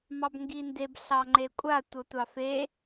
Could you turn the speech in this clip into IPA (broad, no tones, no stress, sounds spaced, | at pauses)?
m ɑ b ŋ ɡ i n d e b ɬ ɑ ŋ͡ǃ e kʷʼ a tʷ ɤ tʷ ɑ f e